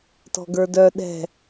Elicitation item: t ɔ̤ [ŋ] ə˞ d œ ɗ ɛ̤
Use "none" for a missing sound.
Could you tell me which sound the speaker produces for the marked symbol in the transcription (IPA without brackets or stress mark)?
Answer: ɡ